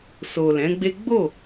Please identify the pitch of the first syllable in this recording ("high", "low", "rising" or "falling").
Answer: low